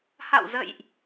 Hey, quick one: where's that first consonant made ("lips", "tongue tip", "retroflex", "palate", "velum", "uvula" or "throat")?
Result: throat